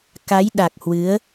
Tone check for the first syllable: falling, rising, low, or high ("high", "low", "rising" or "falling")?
rising